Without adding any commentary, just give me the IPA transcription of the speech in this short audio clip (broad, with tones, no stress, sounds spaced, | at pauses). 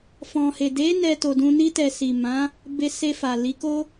f ɔ̃˨ h e˨ d e˨˦ n ɛ˧ t o˨ d ũ˧ n i˧ t ɛ˨ s i˨ m ã˨˦ | b e˧ s e˧ f a˨ l i˨˦ k o˦